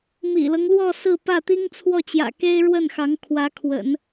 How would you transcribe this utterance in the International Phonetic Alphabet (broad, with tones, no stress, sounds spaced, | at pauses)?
m ḭ˨˩ l ɤ˦ ŋ l w ɔ˥˧ s ɹ̩˥˧ p ä˥˩ t̪ i˥ ŋ t͡sʰ w ɔ˥˩ t͡ɕ j ä̰˨˩ k e˥ ɪ̯ ɻ w ə˥˩ n x ɑ˧˥ ŋ kʰ w ä˧˥ kʰ w ə̰˨˩˦ n